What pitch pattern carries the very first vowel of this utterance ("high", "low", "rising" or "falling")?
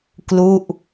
falling